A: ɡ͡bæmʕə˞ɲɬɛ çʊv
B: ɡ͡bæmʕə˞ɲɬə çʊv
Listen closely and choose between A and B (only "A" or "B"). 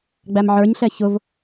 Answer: A